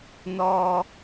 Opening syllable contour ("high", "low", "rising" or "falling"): low